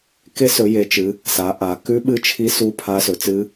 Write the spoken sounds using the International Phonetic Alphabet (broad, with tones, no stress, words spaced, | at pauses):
ke˦˥sɵ˨˦je˨˦ t͡ʃɨ˨˦ | sa˨˦ʔa˨˦ kʉ˦˥ ɓɨ˦˥t͡ʃʰi˦˥su˦˥ pʰa˦˥sɵ˨˦t͡sɨ˦˥